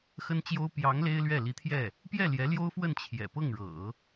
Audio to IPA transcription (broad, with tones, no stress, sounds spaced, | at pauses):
x ə˥ n t͡ɕ j o˥ ʊ̯ p j ɑ˧˥ ŋ l e˥ ɪ̯ l ɥ ɛ˥˩ l i˧˥ t̪ʰ j ɛ˥˩ | p j ɛ˥˩ l j ɛ˧˥ l j o˥ ʊ̯ f w ə˥˩ n t͡ɕʰ j ɛ̰˨˩ p ɤ˥˩ ŋ ɻ ɤ̰˨˩˦